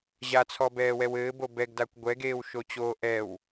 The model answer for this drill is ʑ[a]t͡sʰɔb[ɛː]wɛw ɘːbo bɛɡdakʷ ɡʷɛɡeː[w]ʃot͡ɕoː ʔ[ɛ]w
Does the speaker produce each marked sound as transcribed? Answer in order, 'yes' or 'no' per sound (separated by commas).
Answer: yes, yes, yes, yes